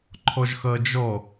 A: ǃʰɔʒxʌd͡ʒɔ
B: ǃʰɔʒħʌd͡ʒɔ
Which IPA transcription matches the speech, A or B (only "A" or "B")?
A